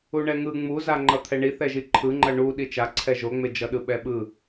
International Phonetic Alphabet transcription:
u ɳ ɛ ŋ ɯ ŋ͡m u z a ŋ͡ǃ ʌ t̪ʰ ɛ ɳ i θ ɛ ʒ i ǃʰ ɯ ŋ͡ǃ ʌ ɳ u ɗ i t͡ʃ a ǀʰ ɛ ʒ o ŋ͡m e d͡ʒ ʌ ɗ ɯ ɓ ɛ ɓ ɯ

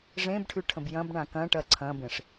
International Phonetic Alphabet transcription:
ʐ ẽ b ʈʰ ʉ ʈʰ ə̃ b j ɐ̃ b ɳ ã k ɐ̃ ʈ ɐ ǀʰ ɐ̃ b ẽ ʂ

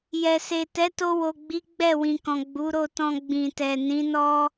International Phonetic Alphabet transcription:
j ɛ˨ s e˨ t ɛ˨˦ t o˧ w o˨ ɡ͡b i˨˦ ɡ͡b ɛ˦˨ w ĩ˨ k ɔ̃˨ ɡ͡b u˨˦ ɾ o˦˨ t ɔ̃˧ ɡ͡b ĩ˨ t ɛ˨ n ĩ˨˦ n ɔ˦

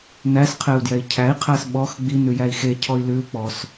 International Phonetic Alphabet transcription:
n æ s qʰ e u̯ d j ɛ i̯ cʰ æ i̯ qʰ æ s ɓ ɔ x ɡ͡b i n ʉ j æ i̯ x e cʰ ɔ i̯ l ʉ u̯ k͡p ɔ s

